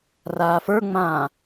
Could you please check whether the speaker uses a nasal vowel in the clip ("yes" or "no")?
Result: yes